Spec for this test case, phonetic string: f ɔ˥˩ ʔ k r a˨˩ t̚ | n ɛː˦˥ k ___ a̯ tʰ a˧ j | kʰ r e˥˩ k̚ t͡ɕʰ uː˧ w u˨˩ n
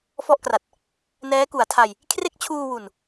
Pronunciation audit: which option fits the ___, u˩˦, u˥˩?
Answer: u˩˦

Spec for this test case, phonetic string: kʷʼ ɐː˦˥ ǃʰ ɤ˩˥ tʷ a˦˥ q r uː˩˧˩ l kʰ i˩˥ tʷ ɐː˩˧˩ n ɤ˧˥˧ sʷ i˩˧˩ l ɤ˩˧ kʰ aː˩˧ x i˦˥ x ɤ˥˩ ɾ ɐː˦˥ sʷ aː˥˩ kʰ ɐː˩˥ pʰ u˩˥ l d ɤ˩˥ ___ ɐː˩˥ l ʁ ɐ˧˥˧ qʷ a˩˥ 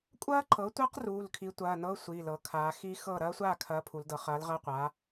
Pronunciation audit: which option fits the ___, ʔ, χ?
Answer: χ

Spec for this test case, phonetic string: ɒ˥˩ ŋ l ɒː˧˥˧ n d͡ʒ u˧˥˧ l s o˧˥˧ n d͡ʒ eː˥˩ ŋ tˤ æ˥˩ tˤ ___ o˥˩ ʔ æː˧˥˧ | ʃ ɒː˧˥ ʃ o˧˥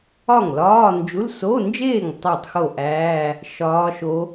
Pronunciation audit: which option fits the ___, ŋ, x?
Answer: x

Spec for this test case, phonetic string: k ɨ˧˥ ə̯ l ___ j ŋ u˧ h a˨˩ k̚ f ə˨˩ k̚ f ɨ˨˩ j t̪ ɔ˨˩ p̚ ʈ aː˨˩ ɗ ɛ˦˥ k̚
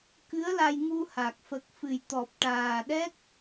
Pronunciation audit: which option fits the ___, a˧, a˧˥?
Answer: a˧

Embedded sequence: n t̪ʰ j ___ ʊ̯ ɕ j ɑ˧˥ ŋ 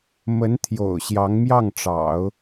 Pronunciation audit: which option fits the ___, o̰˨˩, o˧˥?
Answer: o̰˨˩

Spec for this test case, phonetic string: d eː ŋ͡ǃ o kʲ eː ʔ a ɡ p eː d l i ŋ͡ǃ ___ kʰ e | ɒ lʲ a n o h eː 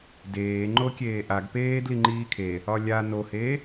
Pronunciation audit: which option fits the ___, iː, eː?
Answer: iː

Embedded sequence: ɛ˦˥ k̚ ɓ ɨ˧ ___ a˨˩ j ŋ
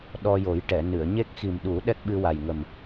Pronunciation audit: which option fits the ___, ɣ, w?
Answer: w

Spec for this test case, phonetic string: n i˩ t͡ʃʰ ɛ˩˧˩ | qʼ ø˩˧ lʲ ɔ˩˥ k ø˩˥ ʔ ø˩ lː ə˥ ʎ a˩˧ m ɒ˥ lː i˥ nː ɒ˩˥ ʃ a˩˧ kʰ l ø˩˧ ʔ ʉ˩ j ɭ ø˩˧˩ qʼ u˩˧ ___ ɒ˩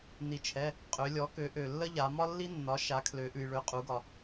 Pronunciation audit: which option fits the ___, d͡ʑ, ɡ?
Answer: ɡ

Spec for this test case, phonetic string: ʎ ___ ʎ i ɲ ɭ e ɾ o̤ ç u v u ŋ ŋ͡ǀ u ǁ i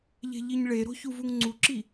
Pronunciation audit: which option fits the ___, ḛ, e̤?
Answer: e̤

